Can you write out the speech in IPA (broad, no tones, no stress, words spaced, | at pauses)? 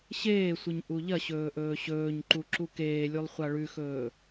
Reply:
ɕeːsʷɨɲ ʔuʎɐɕɵː ʔɵːɕɵːɲǃu ǁukeːlʲulˠ χʷaɭʉxɵː